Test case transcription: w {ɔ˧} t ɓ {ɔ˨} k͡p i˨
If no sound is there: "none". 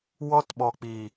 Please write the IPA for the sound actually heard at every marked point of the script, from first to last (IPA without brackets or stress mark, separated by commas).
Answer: ɔ˧, ɔ˨